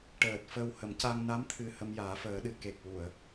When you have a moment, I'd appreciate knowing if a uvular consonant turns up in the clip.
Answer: no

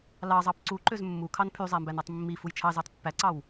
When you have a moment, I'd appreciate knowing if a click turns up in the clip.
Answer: yes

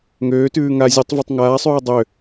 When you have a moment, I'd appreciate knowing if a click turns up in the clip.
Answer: no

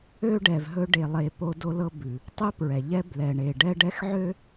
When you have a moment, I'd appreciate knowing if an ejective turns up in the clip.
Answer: no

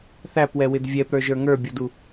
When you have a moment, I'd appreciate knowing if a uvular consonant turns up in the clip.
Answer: no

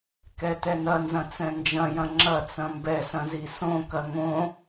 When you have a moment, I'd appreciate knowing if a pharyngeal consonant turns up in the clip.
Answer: no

